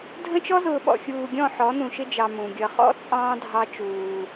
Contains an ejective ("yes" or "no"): yes